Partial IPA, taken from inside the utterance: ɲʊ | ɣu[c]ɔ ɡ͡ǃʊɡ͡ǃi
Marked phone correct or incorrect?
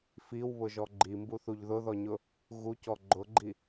correct